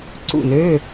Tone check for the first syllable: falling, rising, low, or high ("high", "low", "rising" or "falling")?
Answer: falling